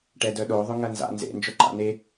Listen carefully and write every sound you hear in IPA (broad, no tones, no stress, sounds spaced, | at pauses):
ʈ ɛ d œ ɗ o ðˤ ʊ ŋ ɐ n z a̰ n z ḛ n d͡ʒ œ ǃ a̰ n e